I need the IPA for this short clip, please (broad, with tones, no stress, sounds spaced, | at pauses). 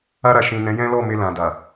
a˧ ɾ a˨ ʃ ĩ˨ n ɛ̃˨˦ j ɛ̃˦ l ɔ˦˨ m e˧ l ã˨ d a˨